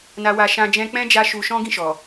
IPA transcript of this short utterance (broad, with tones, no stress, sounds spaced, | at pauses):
n a˧ w a˧ ʃ ã˧ d͡ʒ ɛ̃˧ k͡p ɛ̃˦ d͡ʒ a˧ ʃ u˧ ʃ ɔ̃˦ ɡ ĩ˦˨ ʃ ɔ˨